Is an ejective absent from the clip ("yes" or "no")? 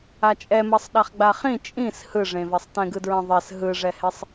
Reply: no